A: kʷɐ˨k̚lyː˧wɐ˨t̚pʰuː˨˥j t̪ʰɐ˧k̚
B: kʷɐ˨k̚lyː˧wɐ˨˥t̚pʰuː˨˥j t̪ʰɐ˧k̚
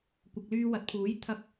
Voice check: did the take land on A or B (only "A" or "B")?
A